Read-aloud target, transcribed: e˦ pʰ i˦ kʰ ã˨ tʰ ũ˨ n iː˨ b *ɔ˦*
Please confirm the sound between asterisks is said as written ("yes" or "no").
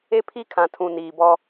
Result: yes